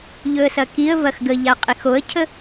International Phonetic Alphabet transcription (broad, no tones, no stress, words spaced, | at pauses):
ʎɵə̯sɐkiə̯vɐx ɡə ʎaqʼixoə̯cʰə